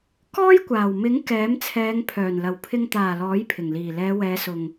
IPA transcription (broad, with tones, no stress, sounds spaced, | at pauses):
k ɔː˥ j kʷ aː˨˩ w m ɪ˨˥ ŋ k ɛː˨˥ m t͡sʰ ɛː˨˧ ŋ pʰ œː˨˩ n l ɐ˨˩ w pʰ ɪ˨ ŋ t̪ aː˨˩ l ɔː˨˥ j pʰ ɪ˨˩ ŋ l iː˨˩ l ɛː˨˧ w ɛː˨˧ s ʊ˨ ŋ